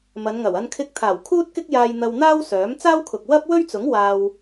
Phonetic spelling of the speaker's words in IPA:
m ɐ˨˧ n ŋ ɐ˨˩ w ɐ˧ n kʰ ɪ˧ k̚ t̪ʰ aː˨˩ w kʰ uː˥ t̚ k ɪ˥ k̚ j aː˧ j n̪ ɐ˧ w n̪ aː˥ w s œː˨˥ m t͡s aː˥ w kʰ ʊ˨ k̚ w ɐ˥ p̚ w ɵ˥ ɥ t͡s ʊ˨˥ ŋ w aː˧ w

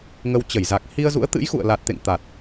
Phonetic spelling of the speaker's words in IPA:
ŋ ə˧ w t͡ɕ ə˧˩ j z a˨˩ k̚ h i˧ ə̯ z ṵ˧˥ ə̯ t̪ ɨ̰˧˥ j x ṵ˧˨ ə̯ l a˨˩ t̚ t̪ ḛ˧˨ ŋ t̪ a˨˩ t̚

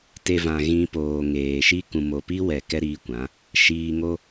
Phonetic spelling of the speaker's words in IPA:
t e˧ v ã˨ ɣ ĩ˧ p oː˨ ŋ eː˨ ʃ i˦ k ũ˨ m o˨ p i˦ w ɛ˨ k ɛ˦ ɾ iː˧ kʷ ã˨˦ | ʃ iː˧ ŋ o˦

